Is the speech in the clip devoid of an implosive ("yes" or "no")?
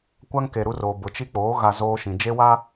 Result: yes